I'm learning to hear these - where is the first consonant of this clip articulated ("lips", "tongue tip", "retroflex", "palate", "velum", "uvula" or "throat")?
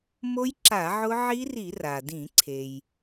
lips